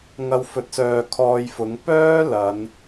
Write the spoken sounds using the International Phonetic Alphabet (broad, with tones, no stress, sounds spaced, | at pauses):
ŋ ɐ˧ w f ɵ˨˥ t̚ s œː˨ kʰ ɔː˧ j f ʊ˨˧ ŋ p œː˥ l ɐ˨˧ n